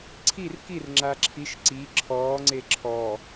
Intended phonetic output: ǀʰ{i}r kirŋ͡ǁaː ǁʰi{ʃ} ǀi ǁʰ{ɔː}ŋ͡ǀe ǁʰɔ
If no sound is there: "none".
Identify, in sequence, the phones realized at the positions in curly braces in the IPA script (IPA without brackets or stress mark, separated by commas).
i, ʃ, ɔː